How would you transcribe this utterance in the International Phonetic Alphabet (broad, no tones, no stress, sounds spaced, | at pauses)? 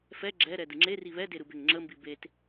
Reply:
f ɛ ɡ͡ǁ ɛ ɾ ɛ d ɯ ŋ͡ǁ e r i β ɛ d e ɾ ɯ b e ŋ ŋ͡ǁ ə m b i b e t